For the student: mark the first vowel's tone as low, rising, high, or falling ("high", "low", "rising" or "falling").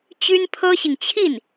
high